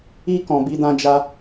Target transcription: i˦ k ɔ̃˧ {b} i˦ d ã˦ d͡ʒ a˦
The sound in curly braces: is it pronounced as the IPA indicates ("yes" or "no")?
yes